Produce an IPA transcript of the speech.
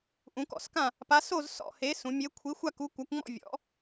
ʔ ũ˧˥ k ɔ̰˥˧ s k ã˥˧ | p a˧˥ s o˥˧ z s ɔ̰˥˧ h e˧˥ s ũ˧˥ mʲ e˧˥ kʷʰ i˧˥ xʷ a˥˧ k u˧˥ kʷ a˧˥ kʷ ŋ͡m ɔ̰˥˧ vʲ ɔ̰˧˥

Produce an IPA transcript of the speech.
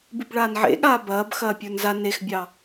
b ɨ b ɭ aː n ʕ ḛ ɠ aː b ɐː b x ɐː pʲ ə˞ n z a n e x bʲ ɑ

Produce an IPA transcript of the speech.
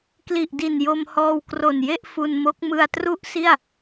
k l i˨˩ ʔ d i˨˩ n j o˧ m h ɔː˧ w k r o˨˩ n j e˥˩ ʔ f u˧ n m o˦˥ k̚ m ɯ˧ a̯ t r u˥˩ ʔ s i˥˩ a̯

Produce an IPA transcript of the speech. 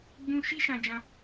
ɡ͡b ũ˦ ʃ i˦ ʃ ã˧ d͡ʒ ã˧

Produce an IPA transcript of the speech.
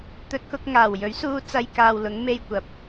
t̪ ɵ˧ t̚ k ʊ˧ k̚ ŋ aː˨˩ w j ɵ˨˥ ɥ s uː˧ t͡s ɐ˧ j k aː˨ w l ʊ˨˧ ŋ m e˧ j kʷ ɐ˨ p̚

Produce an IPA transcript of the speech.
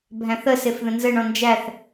bʱ æ̃ θ ə s e f ð ə̃ n z ə ɳ ɔ̃ n d͡ʒ æ θ

